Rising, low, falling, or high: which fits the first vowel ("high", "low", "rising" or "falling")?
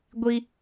low